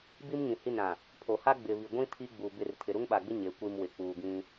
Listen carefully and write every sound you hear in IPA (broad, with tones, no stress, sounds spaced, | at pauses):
b i˦ m ŋ ĩ˨ h i˦˨ n ɾ ã˨ | pʰ o˨ h a˦ ɡ͡b ɪ˨ β i˨ ɡʷ ĩ˦ tʰ i˦ ɡ͡b u˨ b ɪ˦˨ r tʰ ɪ˨ ɾ u˦ ŋ ɓ a˨ ɡ͡b ɪ˦ ɲ e˨˦ kʷ i˨ m w ɪ˨ k͡p uː˨ ɡ ĩ˦